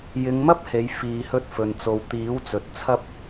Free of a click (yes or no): yes